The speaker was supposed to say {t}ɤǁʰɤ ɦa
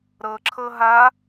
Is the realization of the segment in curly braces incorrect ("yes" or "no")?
yes